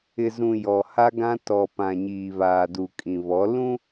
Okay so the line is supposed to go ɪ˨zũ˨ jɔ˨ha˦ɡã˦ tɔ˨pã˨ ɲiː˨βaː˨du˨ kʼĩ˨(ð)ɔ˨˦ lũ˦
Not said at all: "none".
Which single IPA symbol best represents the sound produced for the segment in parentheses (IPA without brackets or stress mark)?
β